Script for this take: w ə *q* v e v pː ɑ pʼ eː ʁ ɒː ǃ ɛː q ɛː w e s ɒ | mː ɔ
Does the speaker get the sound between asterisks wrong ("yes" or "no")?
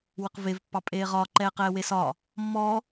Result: no